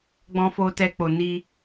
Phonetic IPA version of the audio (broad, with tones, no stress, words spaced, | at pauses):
ɡ͡bɔ̃˦fo˦tɛ˦k͡po˧ ni˦